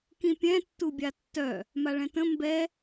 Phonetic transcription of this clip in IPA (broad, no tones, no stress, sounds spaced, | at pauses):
k ĩ pʲ ɛ̃ tː u bʲ a tː œ | m a ɭ ɛ̃ t ə̃ m b ɛ